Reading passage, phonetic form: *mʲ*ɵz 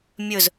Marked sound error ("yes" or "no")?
no